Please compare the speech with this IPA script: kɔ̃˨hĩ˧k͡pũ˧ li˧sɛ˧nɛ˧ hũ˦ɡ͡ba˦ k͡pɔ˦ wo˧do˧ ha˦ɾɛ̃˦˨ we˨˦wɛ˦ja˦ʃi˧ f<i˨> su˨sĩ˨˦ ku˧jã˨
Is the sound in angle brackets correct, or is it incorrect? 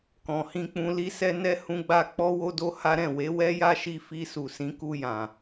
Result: incorrect